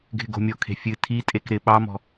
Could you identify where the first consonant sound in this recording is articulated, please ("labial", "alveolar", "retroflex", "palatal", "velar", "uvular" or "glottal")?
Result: velar